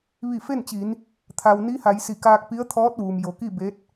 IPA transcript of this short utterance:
ʋ i˧˩ f e˥˨ n t͡ɕ i˩˧ n | t̪ʰ a˩ w n i˧˥ h a˩˧ j s i˧˩ k aː˧ k̚ p i˧˥ ə̯ t̪ʰ ɔː˧˥ t̚ ʋ uː˩ m j o˩˧ k i˥˨ b e˧˥ t̚

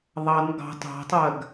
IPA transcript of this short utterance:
ðˤ ɑ n ɡ ɑ̤ tˤ ɑ̤ tˤ ɜ ɡ

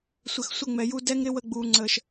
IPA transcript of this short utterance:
sʷ ɘ˨ x sʷ ə˦˨ ŋ͡m ɛ˨ j u˧ d ɛ˦ ŋ ɾ ɪ˦ w ə˧ ɡ͡b uː˨ ŋ͡ǀ əː˨ ʃ

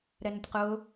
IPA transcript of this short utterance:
ɾ ɛ n ʊ tʲ q ʊː

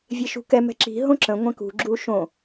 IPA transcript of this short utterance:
vʲ e ʃ ṳ k ɛ m ɛ̤ ǁ i̤ ɦ õ ǁ ə̃ ŋʷ ɛ̃ k ṳ ɡ͡ǁ u ʃ õ

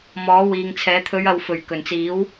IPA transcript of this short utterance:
m ɔː˨˥ w iː˨ ŋ t͡sʰ ɛː˨˥ t̪ʰ ɵ˨˧ ɥ ɐ˨ w f ɵ˨˩ ɥ k ɵ˨˩ n t͡s iː˨˥ w

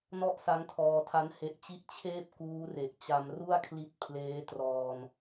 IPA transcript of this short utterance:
n ɔ˥˩ ʔ s a˦˥ ŋ tʰ ɔː˧ tʰ a˦˥ n h e˦˥ ʔ t͡ɕ i˥˩ ʔ t͡ɕʰ eː˥˩ p̚ k uː˦˥ r e˨˩ ʔ t͡ɕ a˧ m r u˥˩ a̯ kʰ l i˦˥ t̚ pʰ l eː˦˥ t r ɔː˧ n

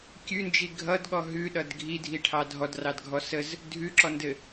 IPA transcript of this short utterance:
kʲ ʉ n d͡ʒ i ɡʱ ʌ d ɠ ɔ ɦ ʉ ɗ ʌ d ɡʱ i dʱ i ʈʰ ɑ dʱ ɔ d r ɑ d ɡʱ ɔ s ə z | dʱ ʉ ǁ ɔ n d ɘ

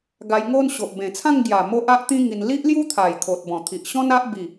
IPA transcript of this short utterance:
ɡ a˧ j ŋ o˦ n ɕ o˨ ʔ b ẽ˨˩ t͡sʰ ã˥˧ ŋ ɡ j a˨˩ m o˦ ʔ a˦ ʔ t̪ ĩ˦ ŋ i˧ n l i˦ ʔ l j u˦ t̪ʰ a˨˩ j kʰ o˨ t̚ b ɔ̃˨˩ t̪ʰ i˨ ʔ ɕ ɔ̃˦ n a˦ ʔ b i˥˧

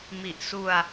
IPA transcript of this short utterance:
m i˨˩ ʔ s u˧ a̯

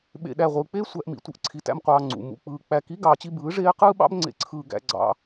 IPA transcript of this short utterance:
ɓ ḛ˨ ɗ æ˨ ʁʷ ɯː˨ k͡p eː˦ sʷ æ˨ ʔ m ḭ˨ tʷ ɯ˨ ʔ ǀʰ i˨ t æ̰˧ m qʷ ɑː˨ ŋ͡ǀ ṵ˨ m ṵ˨ k͡p ɯː˨ k͡p æ˨ k i˨˦ ɡ ɑː˨ t͡ɕ i˧ b ɯː˨˦ ʐ eː˦ q ɯː˦ ɓ ɑ̰˦ b ŋ͡ǀ ḛ˧ ǀʰ ɯː˧ ɡ æ̰˧ ɡ͡ǀ ɑ̰˧

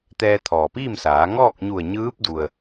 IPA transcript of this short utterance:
t̪ ɛː˧ t̪ʰ ɔː˩ p iː˥˨ m s aː˩˧ ŋ ɔː˥˨ k̚ ɲ u˧˩ ə̯ ɲ ɯː˧˥ p̚ d u˩ ə̯

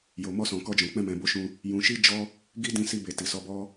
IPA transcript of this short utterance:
j o˨ m ɔ˧ s ɔ̃˨ k ɔ˧ d͡ʒ ɔ̃˨ k͡p ɛ̃˧ m ɛ̃˨ b o˧ ʃ ũ˧ | j ũ˧ ʃ i˦ d͡ʒ ɔ˦ | ɡ i˦ d ĩ˧ s i˧ b e˨ t i˨ s ɔ˨˦ b ɔ˦

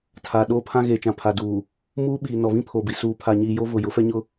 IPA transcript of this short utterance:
tʰ aː˨ ɗ oː˦ pʰ ã˦ ɣ eː˨ t͡ʃ ã˨ pʰ a˨ d uː˨ | m uː˦ ɓ iː˨ n ɔ˨ β ĩ˦ pʰ oː˨ b i˨ s uː˨ pʰ a˨ ɲ iː˨ j o˦ v ʊ˨ j ʊ˨˦ f ɛ˦ ɲ ʊ˦

